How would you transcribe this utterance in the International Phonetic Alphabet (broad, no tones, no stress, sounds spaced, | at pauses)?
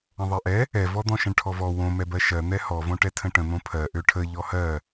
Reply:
ə̃ ðˤ ɜ ʔ ɛ | ɛ v ɔ d̪ ɔ̃ ʃ ə̃ ɳ ʈʰ ɔ v ɔ w õ m ɛ b ɜ ʃ ɜ n̪ ɛ h ɔ v õ ʈ ɛ tʰ ə̃ ʈ ə̃ n̪ õ pʰ ɜ ʔ ø ʈʰ ə ʎ ɔ h ɜ